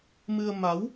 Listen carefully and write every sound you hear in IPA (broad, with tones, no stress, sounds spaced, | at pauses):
m ɨ˧ ə̯ m a˨˦ w